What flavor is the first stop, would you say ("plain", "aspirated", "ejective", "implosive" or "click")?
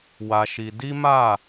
plain